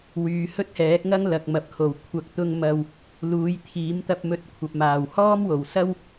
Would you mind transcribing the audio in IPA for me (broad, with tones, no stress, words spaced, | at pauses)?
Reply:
wyː˨˧hɵ˥t̚hɛː˨˥k̚ŋɐ˥ŋ lɐ˨k̚mɐ˨p̚kʰo˨˩w kʷʰɐ˨˥k̚t̪ʊ˧ŋ mɐ˧w | luː˨˥jt̪ʰiː˨˥mt̪ɐ˧p̚mɵ˧t̚ kʷʰɐ˨p̚maː˨˩w hɔː˥mwo˨˩wsɐ˥w